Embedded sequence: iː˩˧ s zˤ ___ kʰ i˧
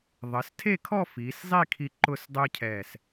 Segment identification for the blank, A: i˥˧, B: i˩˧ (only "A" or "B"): A